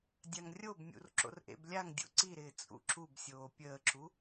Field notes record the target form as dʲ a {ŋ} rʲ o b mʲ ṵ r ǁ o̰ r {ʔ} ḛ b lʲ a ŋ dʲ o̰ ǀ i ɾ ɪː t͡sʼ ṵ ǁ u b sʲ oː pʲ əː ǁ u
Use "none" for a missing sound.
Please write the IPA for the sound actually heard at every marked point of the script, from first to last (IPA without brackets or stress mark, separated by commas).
ŋ, ʔ